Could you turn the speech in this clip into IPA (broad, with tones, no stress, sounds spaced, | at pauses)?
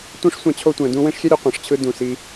tʷ ẽ˥ ʂ sʷ ã˦ t͡ɕʰ o˦ tʷ ɛ̃˨ d ũ˦ w ẽ˥ ʂ xʲ ɛ˥ ɾʲ ɯ˦ qʷ ã˩ ʂ t͡ɕʰ ɯ˦ d ũ˩ s i˨